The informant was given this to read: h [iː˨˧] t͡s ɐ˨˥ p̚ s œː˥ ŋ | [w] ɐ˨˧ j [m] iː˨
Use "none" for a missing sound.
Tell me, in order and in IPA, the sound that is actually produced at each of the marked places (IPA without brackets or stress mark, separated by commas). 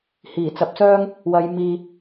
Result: iː˨˩, w, m